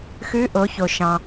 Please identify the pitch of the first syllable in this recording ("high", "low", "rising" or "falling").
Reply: rising